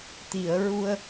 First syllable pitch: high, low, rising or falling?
low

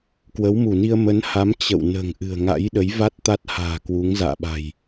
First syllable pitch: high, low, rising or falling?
rising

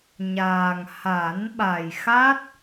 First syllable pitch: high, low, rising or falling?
low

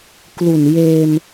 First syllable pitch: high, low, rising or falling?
low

